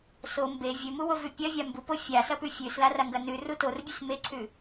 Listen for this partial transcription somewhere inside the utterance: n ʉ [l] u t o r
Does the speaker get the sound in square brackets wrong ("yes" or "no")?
yes